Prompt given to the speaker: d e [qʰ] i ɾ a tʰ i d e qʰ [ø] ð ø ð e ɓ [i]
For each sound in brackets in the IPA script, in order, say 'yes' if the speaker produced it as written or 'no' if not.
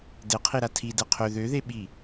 yes, yes, yes

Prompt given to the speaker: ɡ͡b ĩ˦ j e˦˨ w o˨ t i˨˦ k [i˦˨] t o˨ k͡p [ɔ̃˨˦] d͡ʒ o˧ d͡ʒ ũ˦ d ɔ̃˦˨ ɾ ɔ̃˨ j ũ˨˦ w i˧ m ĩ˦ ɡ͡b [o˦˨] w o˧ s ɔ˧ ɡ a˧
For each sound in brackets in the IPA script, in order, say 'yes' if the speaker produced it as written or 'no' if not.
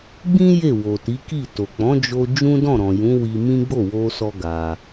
yes, yes, yes

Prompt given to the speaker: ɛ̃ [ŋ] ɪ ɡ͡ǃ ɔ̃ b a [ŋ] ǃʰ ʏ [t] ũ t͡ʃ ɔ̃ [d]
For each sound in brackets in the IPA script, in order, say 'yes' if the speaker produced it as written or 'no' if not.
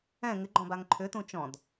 yes, yes, yes, yes

